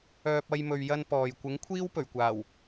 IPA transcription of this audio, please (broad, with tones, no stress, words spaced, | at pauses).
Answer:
œː˧p̚ ɐ˥jmɵ˧ɥjɐ˥npɔː˨j kʷɪ˨˥ŋkʷʰiː˥wpɵ˨˩ɥkʷaː˨˩w